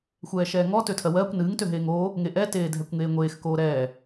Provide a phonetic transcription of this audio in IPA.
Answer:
xʷɛːʃɛːŋɔ tøtʰɜwɜːkʷ nɨːŋ tøɦeːŋoː | ŋeʔɛ teːdʱɛkʷŋeːŋʷeːx koːɾɛː

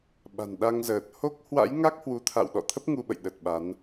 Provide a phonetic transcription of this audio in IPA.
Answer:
ɓa̤˨˩nɗa˧ŋzəː˨˩t̚ ho˦˥k̚ hwa̰˧˥jŋa˦˥k̚ hwu˨˦t̪ʰa̰˧˨w ɗɔ̰˧˨t̪ʰə˦˥p̚ ŋu˧ɓə̰˧˨j ɗə˨˩t̚ɓa˨˦n

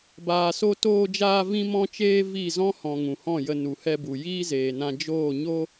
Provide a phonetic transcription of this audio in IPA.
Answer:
baː˨so˧ toː˧d͡ʒaː˧ vĩ˦mɔ̃˦t͡ʃeː˦ vi˦˨zɔ̃˦hɔ̃˨ ŋũ˨hɔ̃˦˨jə˧ nu˨hɛ˧bu˨ jiː˦zeː˨nã˧ d͡ʒoː˦˨ɲo˦

